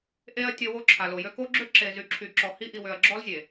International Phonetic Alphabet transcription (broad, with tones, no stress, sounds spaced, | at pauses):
ʔ e˦ ɐ̯ tʲ ə˨ w o˦ ǁʰ a˨ l o˨ j ø˦ k o˦ ɡ͡ǁ ø˦ ǁ e˨ z y˨ ǁʰ y˨ ǁ ɔ˨ h i˦ ʔ i˨ w ø˨ ɐ̯ ɡ͡ǁ ɔ˦ l zʲ e˨